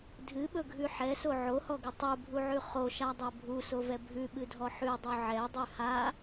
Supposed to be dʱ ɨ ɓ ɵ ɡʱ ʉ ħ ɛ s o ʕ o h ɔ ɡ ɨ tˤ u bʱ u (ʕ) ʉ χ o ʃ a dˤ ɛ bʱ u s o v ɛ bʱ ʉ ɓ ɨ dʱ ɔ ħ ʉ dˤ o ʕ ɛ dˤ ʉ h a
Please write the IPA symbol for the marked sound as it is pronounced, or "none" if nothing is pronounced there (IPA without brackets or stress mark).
ʕ